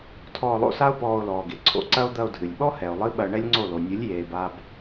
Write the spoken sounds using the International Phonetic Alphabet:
tʰ ɔː˧ lˠ o̰˧ s a˦ o̯ p ɔː˧ o̯ l ɔː˨ ɡ e˨ ǀʰ o̰˧ ǀ ɐ˦ o̯ d̪ ɐ˧ o̯ dʱ ɨ˨ lʲ ɓ ɔ˦ h ɛ˨ o̯ lˠ ɨ˦ ɓ ɐ˧ ɳ ɛ˦ lʲ ŋ͡ǀ o˦˨ l o˨ nʲ ɨ˨˦ lʲ j eː˨ b a˧ b

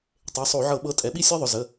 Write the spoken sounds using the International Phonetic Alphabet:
tˤ e˩˧˩ sˤ o˧˩˧ ʕ ɤ˧˩˧ ɓ ɤ˩˥ tʼ ɛ˩˧ ɓ i˦ sʲ ɤ˦ ðˤ ʊ˩˧˩ z ə˩˧˩

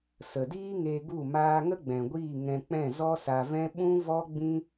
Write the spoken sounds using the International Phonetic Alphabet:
s ə˨ d iː˦ ŋ e˧ ɡ u˦˨ m aː˦ ŋ ə˦ ɡ͡b ɛ̃˨ ɡʷ iː˦˨ ŋ ɛ̃˧ k͡p ɛ̃˦˨ z ɔ˦ s a˧ v ɛ̃˦ ɓ ũ˦ v ɔ˦ ɡ͡b ĩ˦

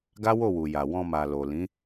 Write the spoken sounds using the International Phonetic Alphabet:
ɡ a˦ w o˦˨ w u˨ j a˨ w ɔ̃˧ m a˨ l o˨ l ĩ˨˦

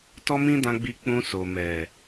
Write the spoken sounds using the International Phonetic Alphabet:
t ɔ˦ m ĩ˦ d ã˧ ɡ͡b i˧ k͡p ũ˧ s o˨ m ɛ˨

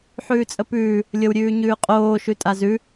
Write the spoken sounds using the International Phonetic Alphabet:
ħ ʉː t͡sʼ ə p ʉː | lʲ ɤ w ɾʲ ʉː ɲ ʉː qʼ oː ʃ ʉ tʼ a z ʉ

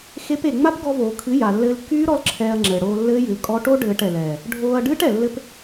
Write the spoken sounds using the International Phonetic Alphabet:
x e˦ p e˧ ŋ͡m a˦ p ɡ ɔ˧ v oː˨ kʰ ɨ˨˦ j a˨ lː ɘː˧ l kː yː˦ ɾ ɔ˦ l ǁʰ ɛː˧ ɐ̯ ŋ͡ǁ ɘː˨ ɽ oː˧ lː ɘː˦ j ɨ˨ l kʼ ɔ˧ ʈ o˦ ɖ ɘː˧ ʈ ɛ˨ l ɛː˨ | ɖʱ oː˧ ɐ̯ ɖ ɨː˦ ʈ ɛ˨ lː ɘ˦ p

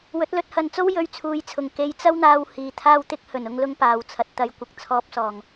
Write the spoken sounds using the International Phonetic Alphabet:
w ɵ˨˥ t̚ l ɵ˧ t̚ h ɐ˨˧ n t͡s o˥ w j ɵ˧ ɥ t͡sʰ uː˨˥ j t͡sʰ ʊ˨˩ ŋ k e˧ j t͡s ɐ˥ w n̪ aː˧ w h iː˨˧ t̪ʰ aː˥ w t̪ ɪ˥ k̚ h ɵ˨˩ n ʊ˧ ŋ l ʊ˧ ŋ p aː˨ w t͡sʰ ɐ˨ t̚ t̪ ɐ˨˧ j kʷ ɪ˨˥ k̚ t͡sʰ ɔː˧ p̚ s ɔː˨˩ ŋ

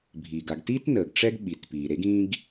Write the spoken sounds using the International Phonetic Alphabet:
bʱ iː˩ ɡ a˨ ɡ t iː˥ t n əː˩ ɡ ʈ͡ʂ ɛ˥ ɡ ɓ i˩ t p iː˩ ɾ e˦ ɡ ĩ˦ ɡ

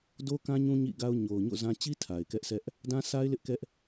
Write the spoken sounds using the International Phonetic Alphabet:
d o˦ k ã˦ ɲ ũ˦ ɲ ḭ˦˨ ɡ a˦ ʊ̯ ɲ o˨ ʊ̯ ɲ o̰˦˨ z ã˦ t͡ɕ i˦ tʰ a˨ ɪ̯ k ɛ˦ ʔ s ɛ˦ ʔ | d ã˦ sʰ a˦ ɪ̯ l ɪ˦ ʔ k ɛ˦ ʔ

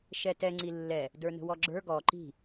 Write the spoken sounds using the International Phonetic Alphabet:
ʃ ɛ t ɛ ŋ͡ǀ i lː ɛ | d ə˞ n ə̤ w ɔ ɡ͡ǁ ə˞ ɡ ɔ ǃ i̤

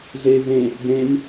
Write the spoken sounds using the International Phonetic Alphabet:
ɮ eː v ẽ | d ẽ m

